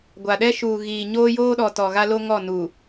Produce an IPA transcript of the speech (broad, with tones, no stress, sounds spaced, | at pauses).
ɡʷ a˨ ɗ ɛ˦ ʃ uː˨ ɣ iː˨ ɲ oː˦ j oː˦ ɗ ɔ˨ t ɔ˨ ɣ a˦ l o˦ ŋ ɔ˦˨ n u˨